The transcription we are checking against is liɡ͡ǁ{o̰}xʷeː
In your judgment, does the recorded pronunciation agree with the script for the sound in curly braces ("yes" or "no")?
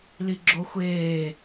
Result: no